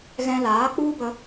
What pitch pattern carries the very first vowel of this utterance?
high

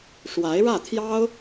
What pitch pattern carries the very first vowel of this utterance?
rising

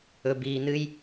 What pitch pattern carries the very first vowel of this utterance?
low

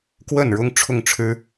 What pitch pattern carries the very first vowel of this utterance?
falling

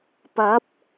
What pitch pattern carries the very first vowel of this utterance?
rising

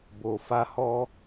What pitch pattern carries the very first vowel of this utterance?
low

